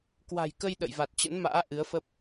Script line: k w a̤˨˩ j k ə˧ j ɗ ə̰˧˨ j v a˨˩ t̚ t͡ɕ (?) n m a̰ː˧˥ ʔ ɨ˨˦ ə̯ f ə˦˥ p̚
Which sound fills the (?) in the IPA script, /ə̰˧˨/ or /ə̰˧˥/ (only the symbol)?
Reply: ə̰˧˥